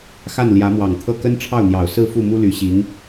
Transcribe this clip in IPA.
xa˥˩nljä˧˥mwɑ˨˩ŋt̪ʰɤ˥˩ kə˥n ʈ͡ʂʰɑ˥˩ʊ̯n̪jɑ˨˩ʊ̯ sɹ̩˥˧fu˥˩ mu˥ly˧˥ɕi˧˥ŋ

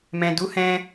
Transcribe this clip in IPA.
mɛ̃˨du˨˦hɛ̃˧

